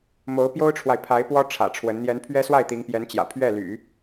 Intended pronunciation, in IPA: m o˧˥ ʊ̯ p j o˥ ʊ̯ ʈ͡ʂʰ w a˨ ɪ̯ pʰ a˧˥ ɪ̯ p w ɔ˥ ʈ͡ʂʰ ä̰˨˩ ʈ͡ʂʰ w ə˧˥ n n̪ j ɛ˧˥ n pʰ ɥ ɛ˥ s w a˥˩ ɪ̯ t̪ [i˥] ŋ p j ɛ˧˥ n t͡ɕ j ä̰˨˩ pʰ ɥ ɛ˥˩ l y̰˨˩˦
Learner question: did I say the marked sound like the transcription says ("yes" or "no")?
no